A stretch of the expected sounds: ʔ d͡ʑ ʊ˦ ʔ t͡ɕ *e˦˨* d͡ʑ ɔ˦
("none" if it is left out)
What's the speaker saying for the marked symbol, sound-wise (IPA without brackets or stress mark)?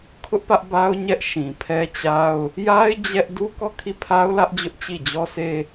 i˦˨